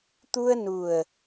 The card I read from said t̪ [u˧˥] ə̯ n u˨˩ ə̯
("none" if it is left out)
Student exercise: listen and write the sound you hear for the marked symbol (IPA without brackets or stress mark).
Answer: u˧